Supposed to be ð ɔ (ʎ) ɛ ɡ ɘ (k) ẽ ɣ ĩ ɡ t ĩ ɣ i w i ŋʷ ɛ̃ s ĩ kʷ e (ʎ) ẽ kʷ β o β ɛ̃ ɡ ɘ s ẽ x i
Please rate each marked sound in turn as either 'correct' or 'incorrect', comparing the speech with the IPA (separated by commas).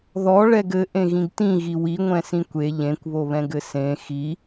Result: incorrect, incorrect, correct